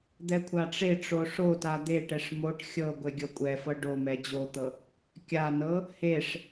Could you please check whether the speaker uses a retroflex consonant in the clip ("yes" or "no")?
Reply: yes